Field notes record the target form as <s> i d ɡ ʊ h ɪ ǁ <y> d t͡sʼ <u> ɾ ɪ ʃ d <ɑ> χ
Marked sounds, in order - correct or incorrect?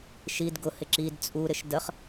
incorrect, incorrect, correct, incorrect

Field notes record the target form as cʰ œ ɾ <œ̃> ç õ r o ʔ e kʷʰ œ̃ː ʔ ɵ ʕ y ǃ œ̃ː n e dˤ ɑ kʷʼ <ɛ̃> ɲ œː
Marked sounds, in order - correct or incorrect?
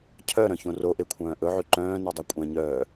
correct, correct

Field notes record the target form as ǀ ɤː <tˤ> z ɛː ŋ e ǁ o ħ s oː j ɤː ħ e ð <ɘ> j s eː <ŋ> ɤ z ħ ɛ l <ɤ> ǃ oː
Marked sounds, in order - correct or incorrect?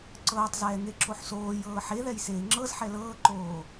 correct, incorrect, incorrect, incorrect

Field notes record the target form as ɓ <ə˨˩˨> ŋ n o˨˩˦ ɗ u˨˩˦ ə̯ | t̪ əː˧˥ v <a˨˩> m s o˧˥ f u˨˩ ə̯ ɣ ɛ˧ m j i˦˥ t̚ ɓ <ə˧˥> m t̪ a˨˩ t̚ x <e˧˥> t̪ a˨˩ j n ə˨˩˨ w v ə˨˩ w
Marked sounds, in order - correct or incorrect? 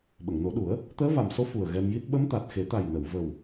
correct, correct, correct, incorrect

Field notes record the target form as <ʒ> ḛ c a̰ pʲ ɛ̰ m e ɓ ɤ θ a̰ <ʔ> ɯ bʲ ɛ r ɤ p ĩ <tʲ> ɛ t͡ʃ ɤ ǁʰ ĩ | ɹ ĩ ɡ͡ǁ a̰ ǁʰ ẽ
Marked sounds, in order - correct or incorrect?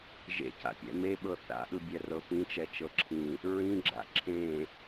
correct, correct, incorrect

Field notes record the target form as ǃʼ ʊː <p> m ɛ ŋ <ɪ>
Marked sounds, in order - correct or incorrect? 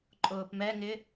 correct, correct

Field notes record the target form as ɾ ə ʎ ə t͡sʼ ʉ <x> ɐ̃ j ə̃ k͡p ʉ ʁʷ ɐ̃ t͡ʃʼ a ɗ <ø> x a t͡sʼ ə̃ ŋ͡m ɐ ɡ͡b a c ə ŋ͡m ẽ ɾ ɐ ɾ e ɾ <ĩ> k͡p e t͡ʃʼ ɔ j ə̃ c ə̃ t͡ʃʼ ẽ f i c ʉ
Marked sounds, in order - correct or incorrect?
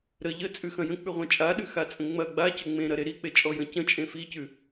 correct, incorrect, incorrect

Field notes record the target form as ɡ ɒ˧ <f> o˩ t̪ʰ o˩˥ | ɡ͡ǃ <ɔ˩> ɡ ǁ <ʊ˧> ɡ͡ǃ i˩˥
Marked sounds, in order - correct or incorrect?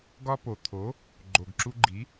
incorrect, incorrect, incorrect

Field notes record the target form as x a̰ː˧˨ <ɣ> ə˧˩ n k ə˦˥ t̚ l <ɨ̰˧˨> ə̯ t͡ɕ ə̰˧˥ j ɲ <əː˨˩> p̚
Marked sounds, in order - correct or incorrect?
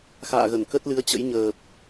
correct, incorrect, correct

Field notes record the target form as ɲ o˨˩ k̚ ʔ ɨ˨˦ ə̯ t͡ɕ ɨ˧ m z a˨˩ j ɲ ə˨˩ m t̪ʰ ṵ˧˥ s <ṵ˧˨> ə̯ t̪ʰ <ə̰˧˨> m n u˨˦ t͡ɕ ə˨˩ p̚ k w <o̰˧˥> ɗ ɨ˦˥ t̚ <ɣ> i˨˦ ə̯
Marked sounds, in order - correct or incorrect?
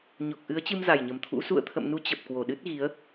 correct, correct, incorrect, correct

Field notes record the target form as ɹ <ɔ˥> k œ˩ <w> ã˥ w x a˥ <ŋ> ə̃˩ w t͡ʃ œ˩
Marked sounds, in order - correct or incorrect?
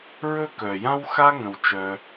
incorrect, incorrect, correct

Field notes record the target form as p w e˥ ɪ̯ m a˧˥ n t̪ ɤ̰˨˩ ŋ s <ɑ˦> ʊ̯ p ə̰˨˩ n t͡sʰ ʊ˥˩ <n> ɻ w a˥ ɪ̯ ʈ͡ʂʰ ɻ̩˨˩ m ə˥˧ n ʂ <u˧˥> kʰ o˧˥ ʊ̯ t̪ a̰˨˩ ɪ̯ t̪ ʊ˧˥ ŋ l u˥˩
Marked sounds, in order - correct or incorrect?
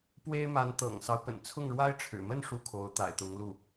correct, incorrect, incorrect

